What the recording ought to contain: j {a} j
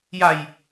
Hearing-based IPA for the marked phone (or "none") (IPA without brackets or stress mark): a